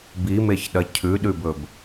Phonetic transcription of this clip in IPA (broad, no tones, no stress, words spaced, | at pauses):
bimeçɗɐ cʰʉɗʉbɵb